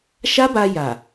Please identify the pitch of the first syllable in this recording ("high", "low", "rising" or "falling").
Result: high